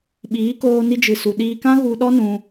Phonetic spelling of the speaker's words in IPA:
ɓiː˨˦koː˧ ni˧d͡ʒɨ˨su˨ ɗiː˧kã˦ɣu˧ ɗɔ˦nũ˧

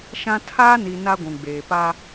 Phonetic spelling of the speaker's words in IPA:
ʃã˦ tʰaː˦ni˨ na˦ɡʷũ˨ɡ͡beː˨ pa˦

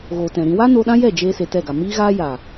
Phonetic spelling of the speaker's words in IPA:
ɣoː˨tɛ̃˨ɾĩ˧ wa˦no˧ ɗã˦jɛ˦˨ d͡ʒeː˦se˧tɛ˦˨ɡa˨ miː˦ɣaː˦ ja˨

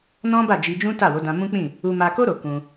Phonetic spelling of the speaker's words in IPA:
nɔ̃˦ba˦˨ d͡ʒi˧d͡ʒũ˦ta˦˨wo˨˦ dã˧mũ˦k͡pĩ˦˨ | u˧ma˧ko˦ ɾo˧kũ˧

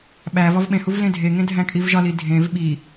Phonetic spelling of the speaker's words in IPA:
ɓævɒv ɓẽhuv lẽdʱeŋẽ dʱæ̃kʼivʒɒli dʱẽv ɓi

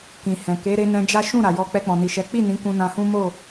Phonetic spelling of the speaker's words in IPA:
kĩ˨hɛ̃˨ ke˨˦ ɾe˧ nɛ̃˧d͡ʒa˦ ʃũ˦˨ ɾa˨jɔ˧ k͡pɛ˧k͡pɔ̃˨ni˨ʃɛ˨˦ k͡pi˦˨nĩ˨˦ kũ˧nã˧hũ˦ mo˦˨

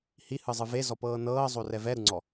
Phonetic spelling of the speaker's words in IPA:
hihɯzˤɯ vezɔpɤː nɤːzˤorɛ vɛɾɯŋ͡ǀɔ

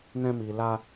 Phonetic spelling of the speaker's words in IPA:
nɛ̃˧mi˨la˧

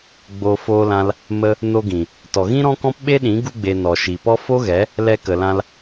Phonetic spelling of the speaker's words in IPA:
ɡ͡bo˧ foː˧lã˧l | mə˧ | no˧ɡĩ˨ | tɔ˨ɣĩ˦ɾɔ̃˦kɔ̃˦p ɓe˦ɗĩ˨˦ ɡu˧ɡ͡be˨ nɔ˨ʃi˨pɔ˦ fo˦ɣɛ˨˦ | lɛ˧kə˨lã˧l

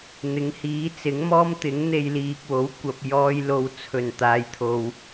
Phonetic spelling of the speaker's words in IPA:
n̪ɪ˨˥ŋhiː˨˥ t͡sɪ˨˥ŋmɔː˥m t̪ɪ˨˥ŋ n̪e˧jliː˨k̚wo˨˥w kʷɐ˨p̚jɔː˧jlo˨w t͡sʰɵ˨˩n t̪aː˨jt̪ʰo˨w

